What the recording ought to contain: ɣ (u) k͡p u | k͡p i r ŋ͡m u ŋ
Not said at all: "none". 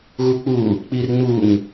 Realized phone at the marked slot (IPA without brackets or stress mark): u